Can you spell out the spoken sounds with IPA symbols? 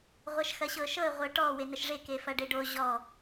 ʁʷ ɐ ʃ x ɐ ɕ ɤ ʃ ɤ ə̯ ʁʷ ɤ ʈ ɔ w e n ə ʃ ʐ e k e f ɐ ɖ e ɖ o ʑ ɔ

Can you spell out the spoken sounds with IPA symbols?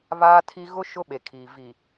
β aː˦ tʰ i˦ ɣ ʊ˦ ʃ ʊ˦ ɓ e˨ kʰ iː˨ v i˨

